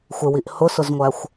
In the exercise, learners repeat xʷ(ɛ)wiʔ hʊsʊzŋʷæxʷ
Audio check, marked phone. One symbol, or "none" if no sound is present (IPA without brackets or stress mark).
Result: ɪ